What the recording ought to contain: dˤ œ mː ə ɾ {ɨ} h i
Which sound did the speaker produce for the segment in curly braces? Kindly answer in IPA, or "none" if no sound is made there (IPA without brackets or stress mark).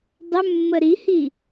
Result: i